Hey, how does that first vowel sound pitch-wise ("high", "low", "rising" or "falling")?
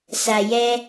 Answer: low